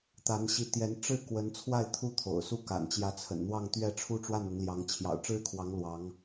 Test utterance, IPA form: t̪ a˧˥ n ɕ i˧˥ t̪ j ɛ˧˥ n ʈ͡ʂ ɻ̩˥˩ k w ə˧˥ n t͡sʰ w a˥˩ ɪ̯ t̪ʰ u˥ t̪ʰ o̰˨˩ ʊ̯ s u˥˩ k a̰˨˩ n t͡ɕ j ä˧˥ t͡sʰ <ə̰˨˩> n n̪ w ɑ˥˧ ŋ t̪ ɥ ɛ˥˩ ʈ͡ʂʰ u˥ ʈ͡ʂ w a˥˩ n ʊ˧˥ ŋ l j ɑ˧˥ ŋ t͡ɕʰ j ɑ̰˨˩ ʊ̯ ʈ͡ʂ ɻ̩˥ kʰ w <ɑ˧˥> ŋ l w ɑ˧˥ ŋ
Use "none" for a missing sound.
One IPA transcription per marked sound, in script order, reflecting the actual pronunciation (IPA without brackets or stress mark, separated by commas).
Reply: ə̰˨˩, ɑ˧˥